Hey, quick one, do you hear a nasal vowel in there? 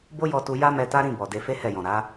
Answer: yes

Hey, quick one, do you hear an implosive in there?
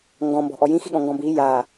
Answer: yes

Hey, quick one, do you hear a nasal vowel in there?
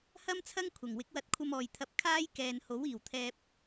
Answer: no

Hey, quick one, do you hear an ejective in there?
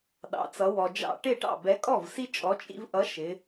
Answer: yes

